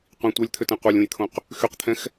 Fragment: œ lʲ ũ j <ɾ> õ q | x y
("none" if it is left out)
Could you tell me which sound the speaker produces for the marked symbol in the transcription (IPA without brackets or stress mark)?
t̪ʰ